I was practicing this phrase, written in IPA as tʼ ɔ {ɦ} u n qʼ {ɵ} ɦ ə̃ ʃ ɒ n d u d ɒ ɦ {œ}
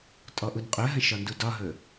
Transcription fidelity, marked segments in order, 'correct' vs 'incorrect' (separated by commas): incorrect, incorrect, incorrect